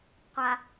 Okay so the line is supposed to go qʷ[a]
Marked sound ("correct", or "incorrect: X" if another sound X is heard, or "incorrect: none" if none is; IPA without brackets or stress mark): correct